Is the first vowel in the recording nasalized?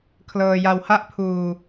no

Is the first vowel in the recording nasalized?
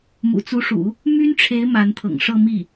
no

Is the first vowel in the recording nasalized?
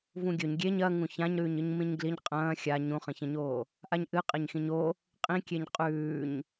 yes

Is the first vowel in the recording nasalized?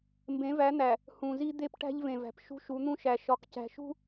yes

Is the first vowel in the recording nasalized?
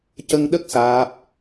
no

